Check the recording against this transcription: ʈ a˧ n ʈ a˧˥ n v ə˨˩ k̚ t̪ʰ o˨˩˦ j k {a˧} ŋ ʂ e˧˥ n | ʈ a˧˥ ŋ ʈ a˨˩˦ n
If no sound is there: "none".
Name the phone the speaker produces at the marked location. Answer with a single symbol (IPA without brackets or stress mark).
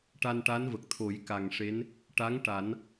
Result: a˨˩